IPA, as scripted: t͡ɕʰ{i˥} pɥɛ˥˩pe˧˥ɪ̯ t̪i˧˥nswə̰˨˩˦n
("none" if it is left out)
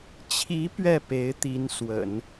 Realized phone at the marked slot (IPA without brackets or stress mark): i˧˥